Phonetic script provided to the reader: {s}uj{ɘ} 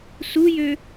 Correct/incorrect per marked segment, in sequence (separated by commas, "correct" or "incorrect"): correct, incorrect